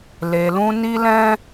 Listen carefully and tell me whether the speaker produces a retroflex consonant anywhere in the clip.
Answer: no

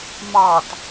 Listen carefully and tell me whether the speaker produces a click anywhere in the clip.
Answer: no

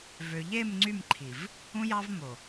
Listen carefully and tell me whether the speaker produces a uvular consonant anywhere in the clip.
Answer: no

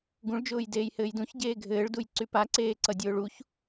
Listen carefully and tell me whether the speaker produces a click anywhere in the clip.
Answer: yes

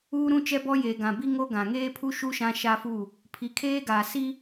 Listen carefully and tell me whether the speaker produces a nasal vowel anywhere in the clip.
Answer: yes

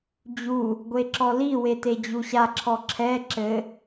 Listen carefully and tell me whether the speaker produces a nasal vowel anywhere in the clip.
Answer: no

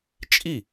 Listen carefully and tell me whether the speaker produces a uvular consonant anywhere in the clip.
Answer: no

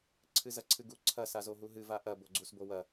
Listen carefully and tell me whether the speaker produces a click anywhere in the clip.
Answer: yes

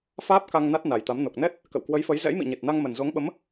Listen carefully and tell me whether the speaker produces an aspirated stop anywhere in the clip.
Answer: no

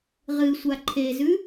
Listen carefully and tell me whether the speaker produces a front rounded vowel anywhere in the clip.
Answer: no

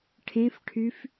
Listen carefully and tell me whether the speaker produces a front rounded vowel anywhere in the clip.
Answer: yes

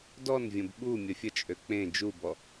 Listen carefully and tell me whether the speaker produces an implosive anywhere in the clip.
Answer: yes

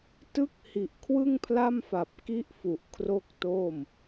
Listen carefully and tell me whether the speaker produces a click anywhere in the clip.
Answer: no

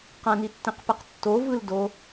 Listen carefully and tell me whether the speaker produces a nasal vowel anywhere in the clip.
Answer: yes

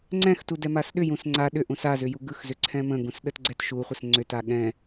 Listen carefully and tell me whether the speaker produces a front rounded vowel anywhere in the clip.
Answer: yes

